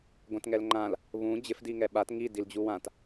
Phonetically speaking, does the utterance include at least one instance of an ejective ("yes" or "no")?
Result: no